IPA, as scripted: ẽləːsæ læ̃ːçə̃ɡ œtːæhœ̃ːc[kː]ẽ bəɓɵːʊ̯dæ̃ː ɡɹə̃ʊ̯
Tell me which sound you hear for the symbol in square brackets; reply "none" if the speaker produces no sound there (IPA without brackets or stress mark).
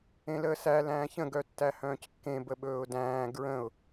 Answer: kː